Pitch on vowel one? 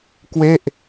falling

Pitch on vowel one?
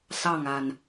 falling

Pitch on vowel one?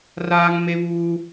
high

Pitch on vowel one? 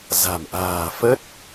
low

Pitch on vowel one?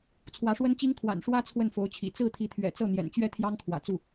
rising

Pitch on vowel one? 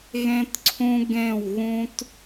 high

